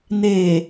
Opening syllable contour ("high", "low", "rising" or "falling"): low